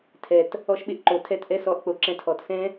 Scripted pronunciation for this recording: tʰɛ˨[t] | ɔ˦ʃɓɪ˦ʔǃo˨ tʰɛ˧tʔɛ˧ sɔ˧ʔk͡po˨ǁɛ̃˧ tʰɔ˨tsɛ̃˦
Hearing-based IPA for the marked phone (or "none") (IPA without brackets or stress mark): t